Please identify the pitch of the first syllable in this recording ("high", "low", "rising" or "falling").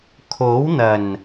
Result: rising